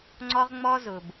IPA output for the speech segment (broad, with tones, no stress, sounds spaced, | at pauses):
ŋ͡ǀ ɔ˦ ʁ ŋ͡m ɔ˦ z ʊ˨ b